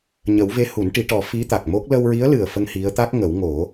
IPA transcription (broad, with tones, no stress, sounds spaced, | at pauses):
ɲ ə˨˩˦ w v e˧˥ h u˨˩˦ n ʈ i˨˩˦ ʈ ɔ˨˩˦ f i˧˥ t̪ a˨˩ k̚ m o˦˥ k̚ l ə˧ w ɹ i˧˥ ə̯ l ɨ˨˩ ə̯ f ə˧ ŋ h i˧˥ ə̯ t̪ a˦˥ k̚ ŋ ə˨˩˦ w ŋ o˨˩˦